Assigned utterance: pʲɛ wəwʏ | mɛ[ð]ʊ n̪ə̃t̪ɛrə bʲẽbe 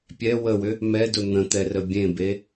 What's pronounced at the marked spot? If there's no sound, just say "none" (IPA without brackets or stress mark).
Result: d